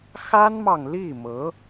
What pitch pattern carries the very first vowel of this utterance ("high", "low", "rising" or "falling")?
high